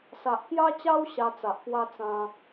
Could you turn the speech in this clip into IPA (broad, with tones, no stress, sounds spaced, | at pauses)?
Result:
s a˨ ʔ k j a˦ t͡ɕ a˦ w ɕ a˧ t͡s a˨ ʔ p w a˦ t͡s ã˧